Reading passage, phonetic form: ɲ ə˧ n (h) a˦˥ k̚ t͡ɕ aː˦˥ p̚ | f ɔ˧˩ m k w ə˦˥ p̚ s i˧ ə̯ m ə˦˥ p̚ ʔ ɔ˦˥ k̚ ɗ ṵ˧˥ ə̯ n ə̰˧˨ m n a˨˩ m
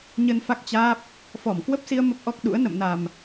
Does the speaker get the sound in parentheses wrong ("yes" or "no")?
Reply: yes